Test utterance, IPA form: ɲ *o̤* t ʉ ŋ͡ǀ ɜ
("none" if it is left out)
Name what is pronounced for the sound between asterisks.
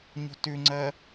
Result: o̤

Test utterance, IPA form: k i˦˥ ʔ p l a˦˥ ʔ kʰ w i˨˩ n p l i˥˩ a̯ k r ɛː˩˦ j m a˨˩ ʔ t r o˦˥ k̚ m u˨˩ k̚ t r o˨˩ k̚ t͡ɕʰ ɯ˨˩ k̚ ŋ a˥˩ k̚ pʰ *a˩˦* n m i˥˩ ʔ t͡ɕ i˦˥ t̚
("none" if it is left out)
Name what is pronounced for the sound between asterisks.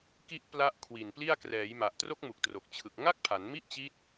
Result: a˩˦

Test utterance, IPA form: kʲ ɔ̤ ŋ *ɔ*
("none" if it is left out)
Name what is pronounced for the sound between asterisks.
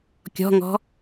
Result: ɔ̤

